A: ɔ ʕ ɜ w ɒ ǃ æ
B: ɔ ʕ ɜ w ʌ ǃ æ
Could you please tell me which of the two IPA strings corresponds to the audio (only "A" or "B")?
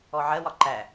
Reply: A